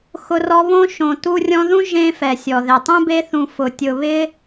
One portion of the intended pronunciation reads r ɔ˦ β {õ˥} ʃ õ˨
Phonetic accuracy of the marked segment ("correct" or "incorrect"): correct